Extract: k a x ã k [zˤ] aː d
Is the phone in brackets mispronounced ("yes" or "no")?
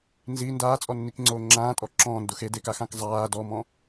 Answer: no